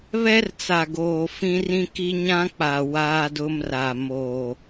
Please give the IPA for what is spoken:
β ɛ˦ r t͡s a˨ ɡ oː˨ f ĩ˦ r ĩ˦ k i˦ ɲ ã˦ k͡p a˨ w aː˦ d ʊ˦ m r a˨ m oː˨

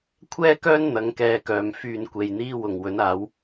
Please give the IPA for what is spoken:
kʷʰ ɛː˥ k œː˥ n n̪ ɐ˨˥ ŋ k ɛː˧ k œː˨ m f yː˨ n kʷ e˨ j n̪ iː˥ w ʊ˨˩ ŋ w ɵ˨˥ n aː˨˥ w

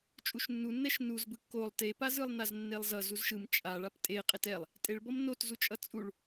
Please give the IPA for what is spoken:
t͡ʃʼ u ʃ nː u nː ɛ ʃ n u z b ɯ kː o lˠ t e p a z ɯ lˠ n a z nː e lˠ z ʌ z u z ʃ ɯ m t͡ʃʼ a ɭ a p tʼ e qʼ e t ɛ lˠ | tʼ e ɭ b ʌ m n o t z u t͡ʃʼ ʌ t͡sʼ u ɭ

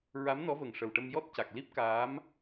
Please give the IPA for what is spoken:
ɹ a˧˥ m n ɔ˧˥ v ə˨˩ ŋ ʂ ə˨˩ w ʈ ə˧ m j ɔ˦˥ t̚ c a˨˩ k̚ l i˦˥ p̚ k aː˧˥ m

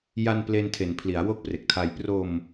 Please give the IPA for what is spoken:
j a˧ n p l e˧ n tʰ e˨˩ n pʰ l i˩˦ a̯ w o˦˥ k̚ p r e˨˩ k̚ tʰ a˧ j p r o˧ m

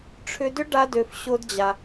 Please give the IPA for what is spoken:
ʈ͡ʂʰ ʏ˧ d ʏ˦ ɖ a˦ d ø˧ f ɕ o˦ d d͡ʑ a˧

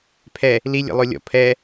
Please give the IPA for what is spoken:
pʰ ɛ | l i lʲ ḛ lˠ o lʲ ɔ̰ pʰ ɛ

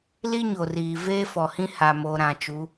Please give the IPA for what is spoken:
l i˦ ɲ o˨ r iː˨ v eː˦ f ɔ˨ h ĩ˦ h a˨ m o˨ ɾ ã˨ t͡ʃ u˨˦

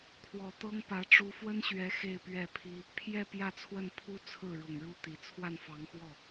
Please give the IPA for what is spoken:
kʰ w ɔ˨˩ t̪ ɤ˥ ŋ p ä˧˥ ʈ͡ʂ u˧˥ f w ə˥ n ɕ ɥ ɛ˧˥ x e˥˧ ɪ̯ p ɥ ɛ˥˩ pʰ i˥ | pʰ j ɛ˥˧ p j ä˥˧ t͡sʰ w ə˥˩ n pʰ u˥ t͡sʰ ɹ̩˥˩ ɻ ʊ˨˩ ŋ ɻ u˥˩ t̪ i˨˩ t͡sʰ w a˥˩ n f ɑ˧˥ ŋ x w ɔ˥˩

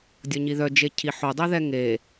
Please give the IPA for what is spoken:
dʲ ɔ ɲ i ð œ d͡ʒ e cʰ i ħ o dˤ œ ð ɛ ŋ e

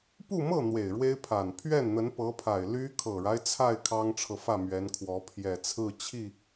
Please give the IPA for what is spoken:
p u˥˧ m ɤ˥˩ n̪ w e˨˩ ɪ̯ ɻ w e˥ ɪ̯ pʰ a˨˩ n pʰ ɥ ɛ˥˩ n n̪ ə˧˥ n p ɤ˧˥ pʰ a˨˩ ɪ̯ l y˥ kʰ ɤ˨˩ ɻ a˦ ɪ̯ t͡sʰ a˥˩ ɪ̯ kʰ ɑ˥ ŋ ʈ͡ʂʰ ɤ˨ f ä˥˩ m ɥ ɛ˧˥ n kʰ w ɔ˧˥ pʰ j ɛ˨˩ t͡sʰ ɹ̩˥˧ t͡ɕʰ i˥˩

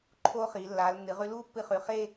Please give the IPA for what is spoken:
ǃʰ oː˧ χ iː˩˧ lː aː˩˧ l nː ɨ˩˧ ʁ ʉ˧ l uː˥ pː ɨ˧ χ ʉ˩˧ χ e˥˧

